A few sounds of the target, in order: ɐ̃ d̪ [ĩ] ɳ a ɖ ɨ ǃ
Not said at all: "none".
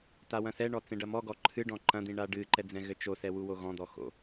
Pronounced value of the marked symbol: ĩ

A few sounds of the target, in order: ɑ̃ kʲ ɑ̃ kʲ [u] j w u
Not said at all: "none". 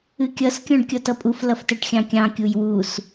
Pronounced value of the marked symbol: u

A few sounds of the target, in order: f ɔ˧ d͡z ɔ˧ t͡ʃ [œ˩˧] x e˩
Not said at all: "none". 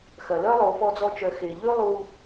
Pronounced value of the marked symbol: œ˩˧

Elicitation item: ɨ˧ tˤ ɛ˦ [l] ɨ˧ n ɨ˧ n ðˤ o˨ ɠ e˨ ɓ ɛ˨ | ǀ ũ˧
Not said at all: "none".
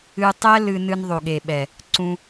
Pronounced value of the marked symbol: l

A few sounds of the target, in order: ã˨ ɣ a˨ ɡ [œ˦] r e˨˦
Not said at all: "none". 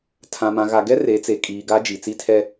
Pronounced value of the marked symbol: ɛ˦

